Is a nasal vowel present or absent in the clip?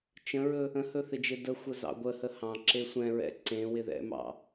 present